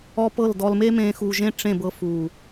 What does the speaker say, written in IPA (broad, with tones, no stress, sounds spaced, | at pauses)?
ɔ˧ p ɤ˦˨ l d ɔ˧ l m e˦ m ẽː˧ x u˨ ʒ ẽ˧ ʈ͡ʂ ẽ˦˨ b ɤ˧ f uː˨